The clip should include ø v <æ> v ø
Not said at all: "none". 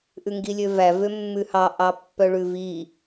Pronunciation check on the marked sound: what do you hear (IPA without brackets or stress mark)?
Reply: æ